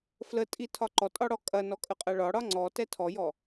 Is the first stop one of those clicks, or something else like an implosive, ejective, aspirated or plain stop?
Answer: ejective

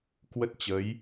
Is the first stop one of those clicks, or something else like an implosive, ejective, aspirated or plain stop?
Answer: plain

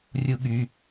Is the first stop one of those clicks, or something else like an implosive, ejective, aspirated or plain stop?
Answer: implosive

